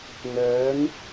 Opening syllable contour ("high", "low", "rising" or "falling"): rising